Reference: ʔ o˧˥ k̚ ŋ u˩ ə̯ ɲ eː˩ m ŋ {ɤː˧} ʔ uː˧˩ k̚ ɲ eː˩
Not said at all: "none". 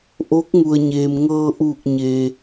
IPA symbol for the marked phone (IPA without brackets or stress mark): ɤː˧